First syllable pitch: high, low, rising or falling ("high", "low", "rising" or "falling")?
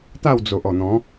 falling